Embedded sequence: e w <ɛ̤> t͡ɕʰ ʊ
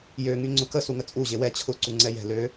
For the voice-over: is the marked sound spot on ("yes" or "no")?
no